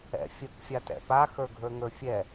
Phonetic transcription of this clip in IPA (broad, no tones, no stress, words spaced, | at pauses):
ɛ̰fʲək fʲatɛ̰pa xə˞ɡʱə˞ŋə˞fʲɛ